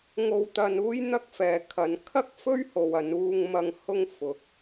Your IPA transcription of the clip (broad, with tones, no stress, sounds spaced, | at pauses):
ŋ o˧ w t̪ ɐ˧ n uː˥ j n̪ ɐ˥ k̚ f ɛː˨ kʰ ɐ˨˧ n kʰ ɐ˥ k̚ f ɵ˥ ɥ h o˨ w ɐ˨˧ n uː˧ ŋ m ɐ˧ ŋ h ʊ˧ ŋ f ʊ˨ k̚